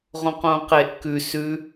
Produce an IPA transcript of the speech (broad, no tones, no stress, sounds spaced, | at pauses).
ʁ õ q õ q e ʔ k ʉ s ʉ